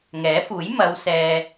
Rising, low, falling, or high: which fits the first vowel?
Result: rising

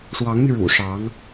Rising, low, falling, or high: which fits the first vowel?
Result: rising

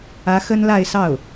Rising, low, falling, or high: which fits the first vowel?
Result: rising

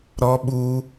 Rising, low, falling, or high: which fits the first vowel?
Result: high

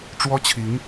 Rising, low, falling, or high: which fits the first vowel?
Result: high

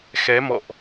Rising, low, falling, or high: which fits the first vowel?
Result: rising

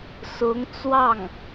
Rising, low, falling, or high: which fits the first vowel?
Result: rising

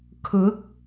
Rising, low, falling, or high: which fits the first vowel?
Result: rising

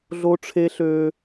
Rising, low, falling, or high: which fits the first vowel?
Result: high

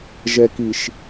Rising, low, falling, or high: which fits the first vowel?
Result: low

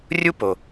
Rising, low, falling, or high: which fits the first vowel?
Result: high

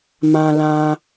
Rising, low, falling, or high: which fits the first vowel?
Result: high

